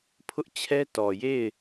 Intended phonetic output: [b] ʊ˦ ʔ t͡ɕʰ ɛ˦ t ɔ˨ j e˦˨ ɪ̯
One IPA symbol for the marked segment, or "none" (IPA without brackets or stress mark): pʰ